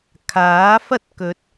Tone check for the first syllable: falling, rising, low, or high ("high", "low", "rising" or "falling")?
rising